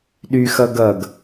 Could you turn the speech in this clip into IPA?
ɗ y x ʌ ɡ ʌ ɡ

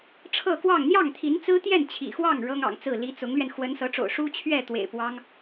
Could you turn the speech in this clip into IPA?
ʈ͡ʂʰ ɤ˥˧ k w ɑ˥˧ ŋ n̪ j ɑ˥˩ ŋ t̪ʰ i˧˥ n t͡s ɹ̩˥ t̪ j ɛ˥˩ n t͡ɕʰ ḭ˨˩ x w ɑ˥˩ ŋ ɻ ɤ˥ ŋ ɑ̰˨˩ ŋ t͡s ɹ̩˥˩ l i˧˥ t͡s ʊ˧˥ ŋ l ɥ ɛ˧ n x w ə˧˥ n s ɤ˧˥ ʈ͡ʂ o̰˨˩ ʊ̯ ʂ u˥ t͡ɕʰ ɥ ɛ˥˩ t̪ w ḛ˨˩ ɪ̯ p w ɑ˥ ŋ

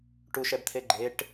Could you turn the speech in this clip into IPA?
ʈ u ʃ ɛ b t̪ʰ e ɡ͡ǃ e ʈ

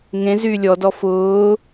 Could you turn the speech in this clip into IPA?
ŋ ẽ z yː lʲ ɔ d ɔ f ʊː

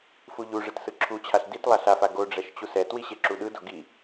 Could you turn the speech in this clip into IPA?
f u ʎ u ʐ ɯ t s ɯ ǁʰ u t͡ɕʰ a ɬ d i t lˠ a ɬ a f a ɡ o ɖ͡ʐ ɛ ʃ t͡ɕ u s ɛ t w i ɕ e ǁ u ɗ ɯ d o ɡ i

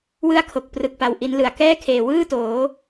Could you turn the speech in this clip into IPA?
w ɯ˥˩ a̯ kʰ o˨˩ k̚ p r ɯ˨˩ k̚ p a˨˩ w ʔ i˦˥ n l ɯ˨˩ a̯ k ɛː˥˩ kʰ eː˨˩ w ɯː˥˩ t oː˩˦

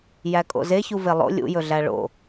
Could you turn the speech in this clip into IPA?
j æ kʼ o̰ z e ç u v e lˠ o̰ lʲ ṵ j ɵ ɮ æ ɭ o̰

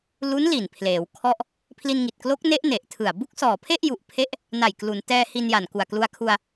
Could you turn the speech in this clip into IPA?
l u˦˥ n l i˨˩ n pʰ l eː˩˦ w kʰ ɔ˥˩ ʔ | pʰ l i˧ n ŋ i˨˩ t̚ k l o˦˥ k̚ n e˦˥ ʔ n e˨˩ ʔ tʰ ɯ˨˩ a̯ b u˥˩ k̚ s ɔː˨˩ pʰ e˥˩ ʔ j u˨˩ ʔ pʰ e˦˥ ʔ | n a˨˩ j k l u˩˦ n t ɛː˧ h i˧ n j a˨˩ n k u˨˩ a̯ k l u˧ a̯ kʰ u˧ a̯

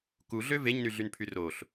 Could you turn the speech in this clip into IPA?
k u ɮ ø v e ɲ n y ɮ y n pʰ y r o ɬ

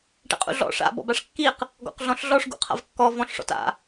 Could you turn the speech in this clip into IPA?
ʈ ɛ̰ qʼ ṵ ɮ ɔ̰ ʂ a̰ b ɔ̰ b a ʂ kː i q | ɡ ɔ̰ q ɮ ɔ̃ ɬ ɮ ɔ ʂ ɡ ṵ qʰ a̰ v kː ɔ v ɔ̃ ɬ ʂ ɔ̰ t a̰

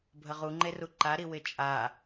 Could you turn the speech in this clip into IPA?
bʱ ə ʁ u ŋ͡ǃ e r u ǃ a ɾ i w ɪ t͡ʃʼ a

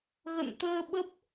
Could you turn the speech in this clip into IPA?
ɣ ə̰˧˨ n t̪ əː˧ ɓ ə˦˥ p̚

